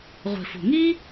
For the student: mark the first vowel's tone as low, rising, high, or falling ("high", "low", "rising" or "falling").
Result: low